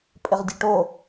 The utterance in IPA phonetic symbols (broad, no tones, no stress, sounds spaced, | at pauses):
pʼ ɪ ʁ dʲ e ʈ o